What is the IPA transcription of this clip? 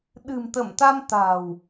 ɗɨ̤˨˩mt̪ə˧˩mt̪a˧m t̪a̤˨˩w

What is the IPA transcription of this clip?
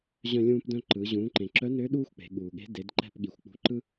ʑœ̃˧lʲũː˧p dœ̃˧ ǃɯ˩˧ ʑũː˩˧ǃẽ˩ǁœ˧˥nø˧˥ ɗuː˥xʷk͡pe̤˩˧ɠuː˩ɠe̤˧˥ de˩˧d ǃɛ̤˧p ɠi˩xʷk͡pṳ˧ǃɯ˥

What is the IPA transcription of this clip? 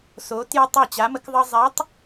so˧˥tjə˥ tˤa˥˨t͡ɕa˧˥mə˧˥kðˤɤ˥ zˤɛ˧˥tˤ

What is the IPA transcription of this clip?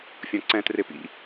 fʲɔ̃ǀɛ̃trɪpḭ

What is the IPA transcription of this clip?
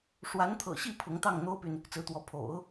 ʂwa˧˥nt̪ʰɤ̰˨˩ɕi˥˩ pʰʊ˧˥ŋ t̪ɑ˥˩ŋn̪o˥ʊ̯py˨n | t͡sɹ̩˧˥t̪wɔ˧˥ pʰo̰˨˩˦ʊ̯

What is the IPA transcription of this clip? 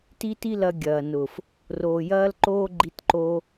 ti˦ti˦lɐ˧ ɡʲɐː˨nʊ˨f | roː˨jɐː˦lǃoː˦ ɡ͡ǃi˧tǃo˧

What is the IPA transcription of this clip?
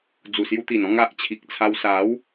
d͡zu˨˩sju˧t̪i˨˩n ɔ̃˥˧ŋ a˨ʔt͡ɕʰi˨k̚t͡sʰa˧w sa˨˦w

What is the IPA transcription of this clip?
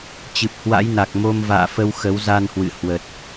t͡ɕɨ˨˩p̚hwa̰˧˥jna˨˩k̚ mo˧m va̰ː˧˨fə˧w xə˨˦wza˧nhwɨ̰˧˨ hwə˨˩t̚

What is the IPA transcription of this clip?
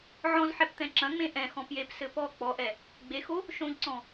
ʕɔ̃zħɛpt̪ɛ̃ ǁɐ̃ŋ͡mẽ ʔɛ̃xɔ̃ pjepsɘ pɔ k͡pɔʔɛ | ɡ͡bexo | ʃõʎǀɔ̃

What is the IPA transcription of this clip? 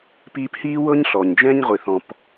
piː˧phiː˦wɤ˦ɲɬɔ˨ɲ d͡ʒɛ̃˦ɲʁʷi˨θɔ̃˨p

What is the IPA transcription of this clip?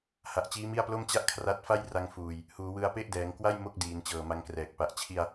ha˨˩ʔt͡ɕiː˦˥mi˥˩a̯plo˥˩m t͡ɕa˥˩ʔkʰra˦˥t̚fa˥˩j ra˧ŋfuː˨˩j | huː˩˦wɯ˧a̯pe˥˩ʔdɛː˩˦ŋ kwa˥˩j mo˥˩k̚ diː˩˦nt͡ɕɤː˨˩ma˧ŋkrɛː˨˩k̚ pa˨˩ʔ t͡ɕʰi˧a̯

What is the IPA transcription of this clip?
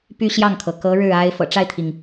py˥ɕjɑ˥˩ŋkʰɤ˩ kɤ˧˥ ɻɻ̩˥˩a˥ɪ̯ fɤ̰˨˩ʈ͡ʂa˥˩ɪ̯t̪ʰi˩ŋ

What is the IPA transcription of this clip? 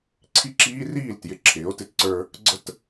ǀʰi˦ǁiː˦riː˦˨l tjɪ˨ǁʰɪː˨˦o̯tɪ˦tǀə˞˦ | ɡ͡ǀə˦t

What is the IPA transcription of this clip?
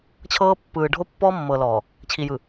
t͡ɕʰɤː˦pːɯː˨ ɖʱo˦pːɔː˦mːɤː˨ lɔː˨ | t͡ɕʰi˨jɯ˨

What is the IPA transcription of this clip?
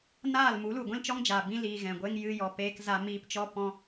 naː˦˨lmu˨˦lu˨ ɡʷĩ˦lt͡ʃɔ˦ŋd͡ʒaː˨ bĩ˧liː˨ ɣɛ̃˨ɡʷe˦ŋ jɨ˧ jɔ˨peː˧k za˧miː˧pt͡ʃɔ˦ pɔ̃˦

